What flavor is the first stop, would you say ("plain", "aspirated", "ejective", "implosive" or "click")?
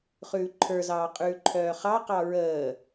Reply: click